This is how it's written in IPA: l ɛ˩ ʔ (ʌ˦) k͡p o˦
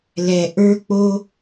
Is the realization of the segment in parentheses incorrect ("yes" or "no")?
yes